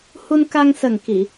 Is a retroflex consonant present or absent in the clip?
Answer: absent